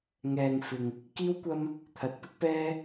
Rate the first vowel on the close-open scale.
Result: mid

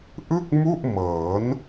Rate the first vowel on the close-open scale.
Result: close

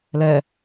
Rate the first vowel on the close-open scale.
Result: mid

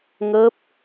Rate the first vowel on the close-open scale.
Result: mid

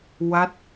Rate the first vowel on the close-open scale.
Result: open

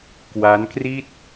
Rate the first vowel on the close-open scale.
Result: open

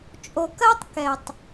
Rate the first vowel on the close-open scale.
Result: mid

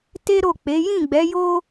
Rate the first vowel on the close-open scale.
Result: mid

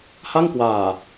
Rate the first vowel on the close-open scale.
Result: open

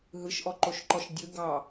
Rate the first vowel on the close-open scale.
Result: close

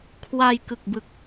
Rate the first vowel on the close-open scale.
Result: open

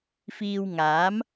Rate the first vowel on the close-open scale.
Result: close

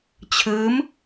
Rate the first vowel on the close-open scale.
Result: close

